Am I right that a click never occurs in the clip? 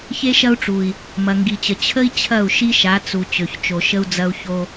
yes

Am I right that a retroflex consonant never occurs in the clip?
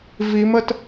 yes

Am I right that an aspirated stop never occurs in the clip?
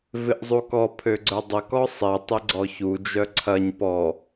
no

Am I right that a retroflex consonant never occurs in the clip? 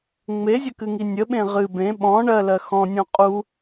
no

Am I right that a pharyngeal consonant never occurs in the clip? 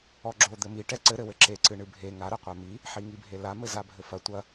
no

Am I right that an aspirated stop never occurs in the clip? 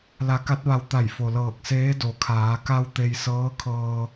no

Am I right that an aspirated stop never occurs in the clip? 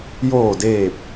yes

